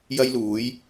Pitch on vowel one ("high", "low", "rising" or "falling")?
high